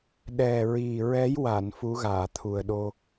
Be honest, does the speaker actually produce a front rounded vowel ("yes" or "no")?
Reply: no